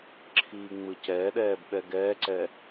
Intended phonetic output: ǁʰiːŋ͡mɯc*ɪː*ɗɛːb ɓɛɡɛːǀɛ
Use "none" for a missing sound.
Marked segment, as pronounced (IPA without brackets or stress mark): ɛː